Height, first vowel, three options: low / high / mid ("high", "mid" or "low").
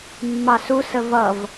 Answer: low